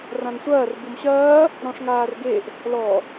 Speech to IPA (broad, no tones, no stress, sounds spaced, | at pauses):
r ã n sʷ ɐː r b u m ɕ ɐː | ɾ ɔ̃ ʂ ŋ aː r ɡ e ʔ | l ɔ